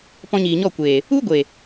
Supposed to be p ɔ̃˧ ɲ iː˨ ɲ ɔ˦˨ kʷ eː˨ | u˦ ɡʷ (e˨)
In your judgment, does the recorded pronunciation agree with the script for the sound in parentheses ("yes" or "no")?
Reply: yes